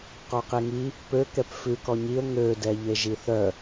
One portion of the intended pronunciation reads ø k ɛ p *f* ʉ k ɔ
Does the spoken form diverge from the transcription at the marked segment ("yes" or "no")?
no